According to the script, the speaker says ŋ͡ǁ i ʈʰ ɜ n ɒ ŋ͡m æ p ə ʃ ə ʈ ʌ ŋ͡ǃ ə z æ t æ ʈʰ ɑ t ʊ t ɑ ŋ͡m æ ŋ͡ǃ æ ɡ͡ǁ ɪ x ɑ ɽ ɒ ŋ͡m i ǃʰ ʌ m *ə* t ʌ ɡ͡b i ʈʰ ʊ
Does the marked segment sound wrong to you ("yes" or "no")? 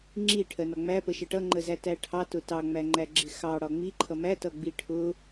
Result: yes